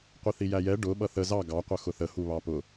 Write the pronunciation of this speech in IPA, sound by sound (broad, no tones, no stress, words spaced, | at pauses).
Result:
qʷiθijæjɛ ɖʊ ɓʌθə zɑ ɡɑ qʷʌxʊθə huβɑpʊ